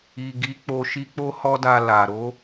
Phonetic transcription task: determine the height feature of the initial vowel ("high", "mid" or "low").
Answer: high